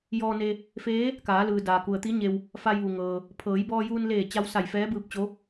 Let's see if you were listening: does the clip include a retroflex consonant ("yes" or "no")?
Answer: no